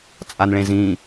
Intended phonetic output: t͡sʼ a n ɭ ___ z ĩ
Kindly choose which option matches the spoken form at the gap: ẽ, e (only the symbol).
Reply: ẽ